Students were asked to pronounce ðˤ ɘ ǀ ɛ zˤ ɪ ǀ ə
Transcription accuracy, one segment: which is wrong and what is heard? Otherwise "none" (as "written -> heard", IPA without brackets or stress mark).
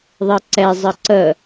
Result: ɪ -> ə